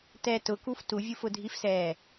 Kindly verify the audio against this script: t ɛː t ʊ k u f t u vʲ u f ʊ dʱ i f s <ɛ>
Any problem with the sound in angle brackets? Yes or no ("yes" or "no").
yes